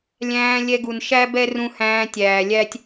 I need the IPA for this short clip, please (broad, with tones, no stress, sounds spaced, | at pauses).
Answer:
lʲ æ̃ː˧ lʲ ɛ˧ ɡ u˨ n ʃ æ˦ b ɛ˦ r ũ˧ h æ̃ː˧ tʲ æː˨ lʲ æ˦ tʲ